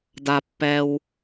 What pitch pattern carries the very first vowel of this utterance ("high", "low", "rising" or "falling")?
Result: low